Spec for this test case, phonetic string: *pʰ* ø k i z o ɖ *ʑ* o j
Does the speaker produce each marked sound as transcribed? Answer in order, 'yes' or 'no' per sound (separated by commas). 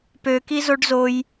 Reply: no, no